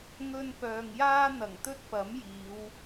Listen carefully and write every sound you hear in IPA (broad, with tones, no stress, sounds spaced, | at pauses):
ŋ ɵ˧ n p œː˨ ŋ j aː˥ n̪ ɐ˨˩ ŋ t̪ ɵ˥ t̚ p ɐ˨˥ m j iː˨˧ w